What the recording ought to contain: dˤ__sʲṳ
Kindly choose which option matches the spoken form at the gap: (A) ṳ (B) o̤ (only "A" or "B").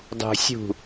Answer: A